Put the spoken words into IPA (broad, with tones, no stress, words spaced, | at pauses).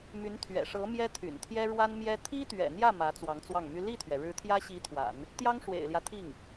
my˧˥nt̪ʰɥɛ̰˨˩ʂɤ˧˥ mjɛ˥t̪ʰy̰˨˩nt̪ʰjɛ˥ ɻwa˥nmjɛ˥ t̪ʰi˥t̪ɥɛ̰˨˩n̪jä˥˩ mä˧˥t͡swɑ˧˥ŋt͡swɑ˥˩ŋmy˥ li˥˩t̪ʰɥɛ˩ ɻɻ̩˧˥t̪ʰjä˥ɕi˧˥t̪ʰwa̰˨˩˦n | t̪jɑ˥ŋʂwḛ˨˩ɪ̯ljä˦ t̪ʰi˥˩ŋ